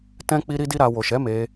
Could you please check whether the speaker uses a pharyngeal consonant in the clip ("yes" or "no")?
no